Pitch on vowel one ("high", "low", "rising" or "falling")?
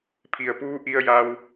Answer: low